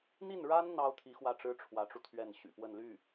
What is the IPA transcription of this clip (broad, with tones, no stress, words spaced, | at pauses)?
n̪i˥˩nɻa˥n n̪ɑ˥ʊ̯t̪ʰi˧˥ xwä˥˩ʈ͡ʂɻ̩˥ʈ͡ʂʰwä˧˥ʈ͡ʂu˧ t̪ʰɥɛ˥˩nɕy̰˨˩ pwə˥˧nly˥˩